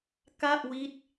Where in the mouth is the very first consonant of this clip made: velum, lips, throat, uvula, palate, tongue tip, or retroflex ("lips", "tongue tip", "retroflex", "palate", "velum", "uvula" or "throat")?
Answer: velum